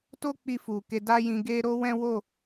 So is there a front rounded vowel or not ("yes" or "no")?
no